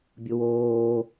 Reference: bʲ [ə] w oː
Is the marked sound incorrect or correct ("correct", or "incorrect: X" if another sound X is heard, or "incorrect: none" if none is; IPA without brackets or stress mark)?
incorrect: ʊ